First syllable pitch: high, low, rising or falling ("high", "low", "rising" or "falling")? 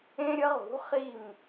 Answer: high